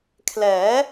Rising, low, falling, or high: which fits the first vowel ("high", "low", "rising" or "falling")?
rising